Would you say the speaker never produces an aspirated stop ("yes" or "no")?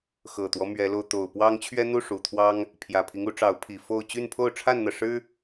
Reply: no